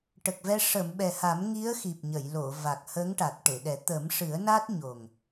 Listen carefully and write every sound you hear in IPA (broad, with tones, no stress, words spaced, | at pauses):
ʈə˨˩k̚vɛ˧ ʂə˨˩˨m ɓɛ˨˩ha˨˩˦mŋi˧˥ə̯ xi˨˩p̚ɲə˨˩˨j lo˨˩˨va˨˩k̚ hə˧˥ŋʈa˨˩t̚ ʈe˨˩˨ɗɛ˨˩˦ t̪ə˨˩˦mʂɨ˨˩˦ə̯na˦˥t̚ ɲo˨˩ŋ